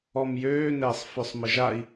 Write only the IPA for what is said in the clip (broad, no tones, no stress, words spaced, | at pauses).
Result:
ɔmjøːnɛːsˤfœsˤ məʒai̯